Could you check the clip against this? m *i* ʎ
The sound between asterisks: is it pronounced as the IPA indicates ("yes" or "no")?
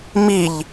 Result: yes